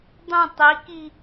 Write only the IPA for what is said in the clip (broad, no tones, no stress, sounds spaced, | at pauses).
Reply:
dˤ ũ tˤ i k i